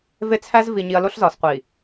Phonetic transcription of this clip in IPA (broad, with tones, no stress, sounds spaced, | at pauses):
v e˦ t͡sʰ æ˦ z v i˨ ɲ i˨ ɐ̯ l o˦ ɬ z ɒː˨ s qʷ i˨